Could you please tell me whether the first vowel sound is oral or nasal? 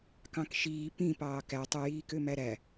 nasal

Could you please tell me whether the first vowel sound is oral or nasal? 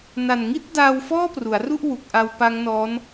oral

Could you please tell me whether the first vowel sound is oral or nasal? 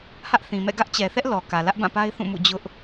oral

